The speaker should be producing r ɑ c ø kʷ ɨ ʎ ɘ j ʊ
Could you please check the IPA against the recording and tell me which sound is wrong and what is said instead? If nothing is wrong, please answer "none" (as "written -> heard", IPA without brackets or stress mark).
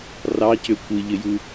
ʊ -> u